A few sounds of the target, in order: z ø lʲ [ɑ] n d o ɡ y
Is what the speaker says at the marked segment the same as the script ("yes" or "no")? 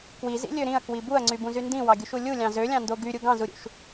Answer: no